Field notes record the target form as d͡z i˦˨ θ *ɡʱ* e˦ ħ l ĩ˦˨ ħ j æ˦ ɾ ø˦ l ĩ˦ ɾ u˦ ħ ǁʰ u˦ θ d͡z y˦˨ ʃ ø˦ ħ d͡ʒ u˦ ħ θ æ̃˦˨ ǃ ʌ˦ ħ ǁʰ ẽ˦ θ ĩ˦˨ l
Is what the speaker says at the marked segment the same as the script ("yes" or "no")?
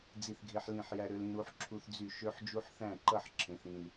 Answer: yes